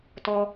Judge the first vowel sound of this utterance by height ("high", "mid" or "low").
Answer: mid